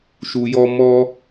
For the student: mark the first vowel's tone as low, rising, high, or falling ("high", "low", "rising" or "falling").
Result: low